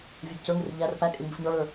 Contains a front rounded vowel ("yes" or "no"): yes